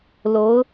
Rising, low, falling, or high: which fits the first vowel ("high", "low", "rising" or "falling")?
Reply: rising